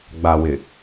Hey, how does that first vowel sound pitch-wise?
low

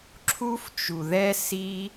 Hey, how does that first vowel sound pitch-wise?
high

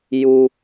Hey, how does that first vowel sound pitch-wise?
high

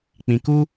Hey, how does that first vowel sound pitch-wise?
high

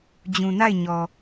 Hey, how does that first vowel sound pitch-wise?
low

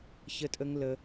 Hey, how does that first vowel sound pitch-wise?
high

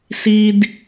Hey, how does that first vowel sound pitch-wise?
high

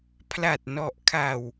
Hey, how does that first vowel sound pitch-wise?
low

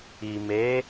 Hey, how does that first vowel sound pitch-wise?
low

